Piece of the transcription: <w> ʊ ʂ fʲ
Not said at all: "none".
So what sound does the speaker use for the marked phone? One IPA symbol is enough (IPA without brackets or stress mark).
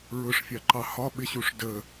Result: ɹ